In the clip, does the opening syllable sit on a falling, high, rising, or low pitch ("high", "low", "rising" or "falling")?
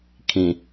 low